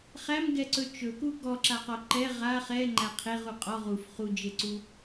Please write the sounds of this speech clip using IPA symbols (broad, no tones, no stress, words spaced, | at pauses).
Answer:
χæmɡɛǀɵ t͡ʃɵku ɡɔǁaqɔ ǃɛ ʁa χɛŋ͡ǃæ qʰeʁu qʼɔ ʁuf χud͡ʒeǀu